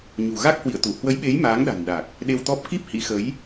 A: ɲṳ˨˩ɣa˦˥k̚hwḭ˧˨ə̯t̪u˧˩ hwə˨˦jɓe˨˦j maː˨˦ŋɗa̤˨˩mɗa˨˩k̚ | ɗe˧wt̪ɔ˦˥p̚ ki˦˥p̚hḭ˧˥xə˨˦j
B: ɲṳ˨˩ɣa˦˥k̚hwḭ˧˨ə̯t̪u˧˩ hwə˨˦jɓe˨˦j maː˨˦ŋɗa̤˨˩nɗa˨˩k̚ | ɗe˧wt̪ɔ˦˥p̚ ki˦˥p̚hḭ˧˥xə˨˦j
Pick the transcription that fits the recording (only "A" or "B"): B